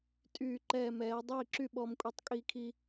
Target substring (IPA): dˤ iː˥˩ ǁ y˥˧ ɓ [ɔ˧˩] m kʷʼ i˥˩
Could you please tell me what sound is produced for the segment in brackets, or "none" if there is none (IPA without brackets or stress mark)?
ɔ˧˩